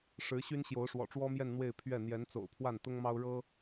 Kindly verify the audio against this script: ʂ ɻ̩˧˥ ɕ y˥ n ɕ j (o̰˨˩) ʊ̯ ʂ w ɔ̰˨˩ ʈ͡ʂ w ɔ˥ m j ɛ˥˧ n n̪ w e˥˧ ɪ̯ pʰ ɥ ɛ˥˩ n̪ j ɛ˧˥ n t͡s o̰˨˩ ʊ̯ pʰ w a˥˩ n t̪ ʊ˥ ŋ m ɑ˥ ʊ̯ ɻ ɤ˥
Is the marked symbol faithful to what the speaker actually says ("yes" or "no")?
no